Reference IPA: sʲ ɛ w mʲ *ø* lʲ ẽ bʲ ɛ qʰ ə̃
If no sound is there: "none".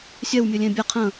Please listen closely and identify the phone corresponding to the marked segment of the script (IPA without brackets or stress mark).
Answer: ø